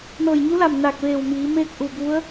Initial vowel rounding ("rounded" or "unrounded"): unrounded